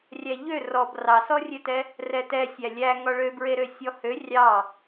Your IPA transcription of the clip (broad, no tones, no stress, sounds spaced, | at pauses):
rʲ æ ʎ ø r ɔ b r ɑ s ɔ rʲ ø t ɛ | r ɛ t ɛ sʲ æ lʲ æ ŋ ɔ ɭ ø b ɹ e ɾ ø sʲ ɔ h ø rʲ ɑ